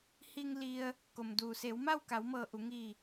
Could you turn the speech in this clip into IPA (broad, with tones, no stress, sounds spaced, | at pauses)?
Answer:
h i˧ ŋ l i˧ ə̯ | k o˩ m d uː˩ s eː˩˧ w m a˥˨ w k a˩˧ w m ɤː˧˩ ʔ u˩˧ ŋ i˧˩